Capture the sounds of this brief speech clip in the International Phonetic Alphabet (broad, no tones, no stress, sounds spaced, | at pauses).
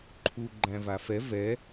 ǃʰ u ɡ͡ǃ æ̃ v a f ɛ v ɛ